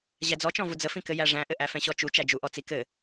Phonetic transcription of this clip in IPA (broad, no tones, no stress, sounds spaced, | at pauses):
ʑ æ d͡z ɔ t͡ʃ ɔ̃ v u d͡z ə f ĩ k ɘ j æ ʐ æ̃ ʔ ɘ ʔ æ f ɛ̃ ɕ ɔ t͡ʃ u t͡ʃ æ d͡ʒ u ʔ ɔ t͡s i k ɘ